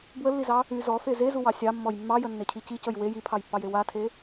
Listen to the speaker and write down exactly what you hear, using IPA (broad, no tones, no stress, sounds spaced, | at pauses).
b w ə lː i z ɑ | y z ɔ f e z e z u w ɑ sʲ ɑ mː ɔ j mː ɑ j ə nː e cʰ i c i c ə j w e j i pʰ ɑ j pː ɑ j e w a tʰ e